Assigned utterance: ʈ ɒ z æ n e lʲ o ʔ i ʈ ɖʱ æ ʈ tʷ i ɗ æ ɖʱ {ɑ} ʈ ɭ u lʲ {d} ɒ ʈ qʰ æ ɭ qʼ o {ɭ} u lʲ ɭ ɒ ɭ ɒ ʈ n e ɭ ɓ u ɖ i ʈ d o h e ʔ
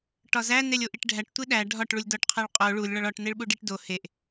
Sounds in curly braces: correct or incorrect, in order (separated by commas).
incorrect, correct, correct